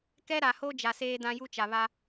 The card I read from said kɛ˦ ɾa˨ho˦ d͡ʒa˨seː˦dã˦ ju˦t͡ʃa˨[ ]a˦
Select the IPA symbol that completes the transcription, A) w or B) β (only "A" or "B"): B